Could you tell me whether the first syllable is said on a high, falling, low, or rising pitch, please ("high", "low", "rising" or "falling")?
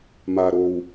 low